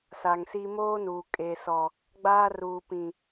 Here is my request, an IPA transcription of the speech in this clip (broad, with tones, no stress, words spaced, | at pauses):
sa˨ŋsi˦ moː˦nuː˨ kʼe˨sɔ˨ | ɡ͡baː˦ruː˨pĩ˨